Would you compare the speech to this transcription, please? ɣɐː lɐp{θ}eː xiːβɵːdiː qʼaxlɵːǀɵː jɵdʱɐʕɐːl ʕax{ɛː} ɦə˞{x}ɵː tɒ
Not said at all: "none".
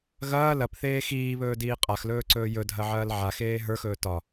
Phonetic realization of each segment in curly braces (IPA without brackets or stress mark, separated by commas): θ, eː, x